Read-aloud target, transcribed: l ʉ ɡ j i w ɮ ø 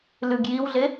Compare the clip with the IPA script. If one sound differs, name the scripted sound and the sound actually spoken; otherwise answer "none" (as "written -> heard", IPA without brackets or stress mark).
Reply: ø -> e